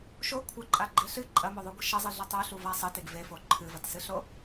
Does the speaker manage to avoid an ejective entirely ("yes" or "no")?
no